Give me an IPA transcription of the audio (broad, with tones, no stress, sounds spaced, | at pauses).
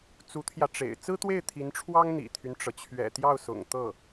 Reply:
t͡s u˧˥ t̪ʰ j ä˧ ʈ͡ʂ ḛ˨˩ ɪ̯ t͡s ɹ̩˥ t̪ w e˥˩ ɪ̯ t̪ʰ i˧˥ n ʈ͡ʂʰ w ɑ˥ ŋ n̪ ḭ˨˩ t̪ʰ y˦ n ʈ͡ʂ ɤ˩ t͡ɕʰ ɥ ɛ̰˨˩ t̪ j ɑ˥˩ ʊ̯ s ʊ̰˨˩ ŋ t̪ ɤ˥˩